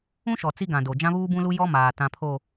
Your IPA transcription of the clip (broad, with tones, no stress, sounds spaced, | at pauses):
ũ˦ ʃ ɔ˨ t͡s i˦ ɡ ã˨ d o˨ d͡ʒ ã˦ β uː˦ b ũ˦ l u˦ j ɔ˦ m aː˨ t ã˨ pʰ o˨